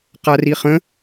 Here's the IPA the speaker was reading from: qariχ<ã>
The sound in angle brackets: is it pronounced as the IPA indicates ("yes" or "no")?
no